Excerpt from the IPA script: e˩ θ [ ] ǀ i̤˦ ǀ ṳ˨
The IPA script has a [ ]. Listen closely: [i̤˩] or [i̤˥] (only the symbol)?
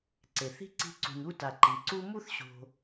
i̤˥